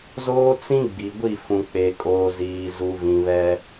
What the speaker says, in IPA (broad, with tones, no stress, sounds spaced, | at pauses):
z oː˦ t͡s ĩ˦ ɡ͡b i˨ ɡʷ i˦˨ f ũ˨ k͡p e˨ kʼ oː˨ z iː˨ z u˨ v ĩ˨ β ɛ˦